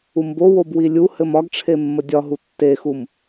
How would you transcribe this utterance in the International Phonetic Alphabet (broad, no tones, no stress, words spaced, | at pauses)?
umbowob wilʲuhɘm ɒɡʈ͡ʂʰe mːədʲɒɦu tːexum